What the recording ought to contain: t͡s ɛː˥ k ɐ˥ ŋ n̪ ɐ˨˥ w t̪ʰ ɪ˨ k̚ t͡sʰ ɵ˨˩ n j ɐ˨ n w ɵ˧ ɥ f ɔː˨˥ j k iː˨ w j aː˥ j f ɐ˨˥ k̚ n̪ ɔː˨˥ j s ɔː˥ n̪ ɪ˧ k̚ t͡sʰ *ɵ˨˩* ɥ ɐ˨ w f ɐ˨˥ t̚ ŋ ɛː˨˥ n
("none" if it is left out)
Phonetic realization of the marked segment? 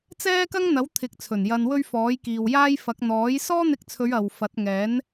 ɵ˨˧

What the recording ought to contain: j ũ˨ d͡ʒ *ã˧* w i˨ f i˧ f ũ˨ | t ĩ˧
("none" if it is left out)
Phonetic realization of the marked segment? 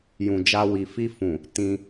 a˧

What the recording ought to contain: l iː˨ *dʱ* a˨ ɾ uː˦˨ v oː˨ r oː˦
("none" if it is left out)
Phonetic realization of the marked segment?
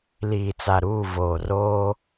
t͡s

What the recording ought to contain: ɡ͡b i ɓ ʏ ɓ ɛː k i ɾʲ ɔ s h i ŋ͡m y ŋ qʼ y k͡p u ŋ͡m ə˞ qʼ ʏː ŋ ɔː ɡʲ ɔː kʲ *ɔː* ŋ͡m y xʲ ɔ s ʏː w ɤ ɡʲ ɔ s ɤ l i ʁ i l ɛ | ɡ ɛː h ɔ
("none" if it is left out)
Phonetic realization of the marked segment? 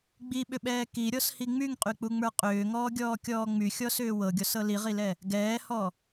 ɔː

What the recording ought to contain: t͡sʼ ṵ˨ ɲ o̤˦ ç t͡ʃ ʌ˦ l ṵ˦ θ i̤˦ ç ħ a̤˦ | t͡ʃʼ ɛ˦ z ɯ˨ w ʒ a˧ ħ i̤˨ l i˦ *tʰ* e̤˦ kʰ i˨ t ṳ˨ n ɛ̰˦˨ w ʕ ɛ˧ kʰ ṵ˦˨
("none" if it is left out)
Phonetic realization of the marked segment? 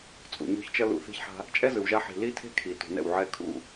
tʰ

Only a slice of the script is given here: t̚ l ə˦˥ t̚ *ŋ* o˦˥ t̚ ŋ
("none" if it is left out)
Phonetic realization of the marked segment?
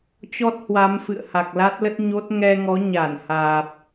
ɲ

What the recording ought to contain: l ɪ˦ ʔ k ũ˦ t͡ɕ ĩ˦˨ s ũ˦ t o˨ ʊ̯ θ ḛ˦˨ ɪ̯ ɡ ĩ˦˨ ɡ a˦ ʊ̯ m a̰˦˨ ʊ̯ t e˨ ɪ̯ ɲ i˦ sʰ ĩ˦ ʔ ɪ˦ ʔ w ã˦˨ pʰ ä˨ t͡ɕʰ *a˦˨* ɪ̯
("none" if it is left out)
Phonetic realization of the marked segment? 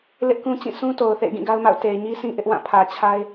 a˦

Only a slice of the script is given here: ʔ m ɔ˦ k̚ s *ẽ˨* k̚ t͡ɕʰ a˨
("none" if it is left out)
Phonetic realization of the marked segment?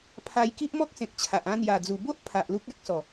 ẽ˨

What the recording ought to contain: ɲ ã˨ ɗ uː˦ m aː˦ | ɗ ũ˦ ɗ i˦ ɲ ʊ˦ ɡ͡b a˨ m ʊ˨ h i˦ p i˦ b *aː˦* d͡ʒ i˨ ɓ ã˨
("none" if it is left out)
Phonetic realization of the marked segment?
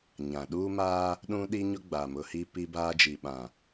aː˦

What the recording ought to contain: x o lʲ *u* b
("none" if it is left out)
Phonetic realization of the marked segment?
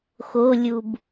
u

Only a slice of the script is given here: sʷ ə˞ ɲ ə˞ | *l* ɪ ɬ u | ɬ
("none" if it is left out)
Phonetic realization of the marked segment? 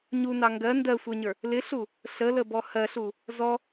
l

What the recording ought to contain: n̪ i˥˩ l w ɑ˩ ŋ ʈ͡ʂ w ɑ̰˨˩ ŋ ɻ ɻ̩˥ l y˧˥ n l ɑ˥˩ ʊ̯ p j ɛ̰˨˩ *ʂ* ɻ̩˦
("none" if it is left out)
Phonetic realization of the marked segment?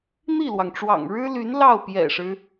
ʂ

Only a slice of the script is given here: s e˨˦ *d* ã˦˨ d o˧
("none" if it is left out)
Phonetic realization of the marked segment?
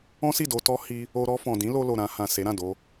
ɾ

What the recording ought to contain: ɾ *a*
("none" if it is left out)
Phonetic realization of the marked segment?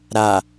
a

